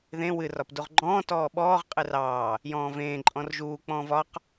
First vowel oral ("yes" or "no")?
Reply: no